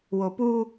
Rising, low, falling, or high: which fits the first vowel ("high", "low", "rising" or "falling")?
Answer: low